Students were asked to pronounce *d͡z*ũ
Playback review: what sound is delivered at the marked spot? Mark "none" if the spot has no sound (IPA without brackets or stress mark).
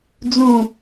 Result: d͡z